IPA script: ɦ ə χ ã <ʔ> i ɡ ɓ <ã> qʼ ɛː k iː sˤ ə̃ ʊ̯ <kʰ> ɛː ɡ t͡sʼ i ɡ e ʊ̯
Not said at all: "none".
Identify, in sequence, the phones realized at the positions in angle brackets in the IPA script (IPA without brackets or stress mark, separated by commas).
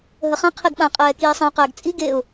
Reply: qʰ, ã, q